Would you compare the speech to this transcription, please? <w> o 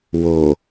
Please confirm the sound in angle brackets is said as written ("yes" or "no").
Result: yes